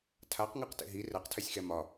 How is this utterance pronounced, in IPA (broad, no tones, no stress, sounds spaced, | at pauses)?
tʰ a q ŋ a q t ḛ ɦ i r ɛ q tʰ ɛ sʲ x ɛ m ɒ